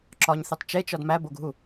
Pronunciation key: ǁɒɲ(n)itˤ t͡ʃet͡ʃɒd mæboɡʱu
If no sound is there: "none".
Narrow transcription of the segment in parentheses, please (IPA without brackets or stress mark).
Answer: θ